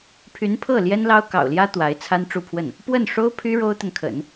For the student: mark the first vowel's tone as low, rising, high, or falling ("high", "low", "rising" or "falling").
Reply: rising